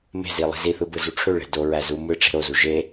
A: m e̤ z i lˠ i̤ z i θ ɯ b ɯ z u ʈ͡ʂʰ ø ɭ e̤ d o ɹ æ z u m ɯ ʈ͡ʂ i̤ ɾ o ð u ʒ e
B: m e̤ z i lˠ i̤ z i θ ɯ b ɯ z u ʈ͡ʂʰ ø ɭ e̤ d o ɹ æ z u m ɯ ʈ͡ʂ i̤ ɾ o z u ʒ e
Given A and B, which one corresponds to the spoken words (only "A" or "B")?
B